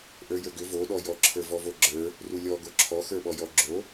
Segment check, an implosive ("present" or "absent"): present